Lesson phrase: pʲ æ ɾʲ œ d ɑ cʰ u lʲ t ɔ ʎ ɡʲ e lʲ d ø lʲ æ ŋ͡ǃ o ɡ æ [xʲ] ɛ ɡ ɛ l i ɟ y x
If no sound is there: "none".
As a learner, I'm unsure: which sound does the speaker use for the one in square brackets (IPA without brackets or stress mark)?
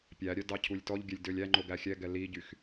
xʲ